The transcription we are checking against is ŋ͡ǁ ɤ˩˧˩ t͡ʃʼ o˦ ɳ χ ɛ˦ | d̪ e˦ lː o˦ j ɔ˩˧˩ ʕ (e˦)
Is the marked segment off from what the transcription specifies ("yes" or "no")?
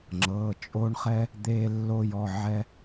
yes